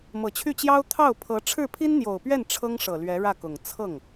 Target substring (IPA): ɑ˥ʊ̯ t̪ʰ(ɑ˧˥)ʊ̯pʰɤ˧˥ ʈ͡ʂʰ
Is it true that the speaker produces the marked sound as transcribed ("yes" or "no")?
no